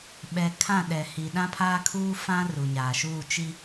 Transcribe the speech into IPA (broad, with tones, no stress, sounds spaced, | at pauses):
ɓ ɛ˨ kʰ ã˦˨ ɗ ɛ˨ h i˨ ɗ ã˦ pʰ aː˦ kʰ uː˦ f ã˦ r u˨ ɲ aː˨ ʃ uː˦˨ t͡ʃ i˦